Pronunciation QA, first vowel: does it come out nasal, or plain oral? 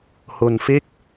oral